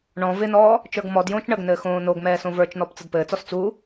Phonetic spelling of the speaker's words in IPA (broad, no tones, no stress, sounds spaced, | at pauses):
ɳ ɔ̃ v ɪ n ɔː | t͡ʃ ə˞ ɡ m ɔ d j õː t͡ʃ ɳ ə ɡ n ɘː x õː n o ɡ m ɛː s õ v ə˞ t͡ʃ n ɔ p t͡s ə d p ɘː t͡s ɔ s t͡s u